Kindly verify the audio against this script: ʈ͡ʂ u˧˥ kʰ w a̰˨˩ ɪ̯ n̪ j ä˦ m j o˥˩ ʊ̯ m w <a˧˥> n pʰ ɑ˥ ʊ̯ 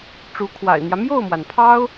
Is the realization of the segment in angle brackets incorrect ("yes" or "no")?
yes